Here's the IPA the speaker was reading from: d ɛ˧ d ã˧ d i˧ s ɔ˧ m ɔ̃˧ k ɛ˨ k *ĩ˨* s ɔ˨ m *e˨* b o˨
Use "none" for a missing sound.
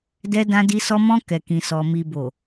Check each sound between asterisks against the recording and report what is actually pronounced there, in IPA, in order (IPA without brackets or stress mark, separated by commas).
ĩ˨, i˨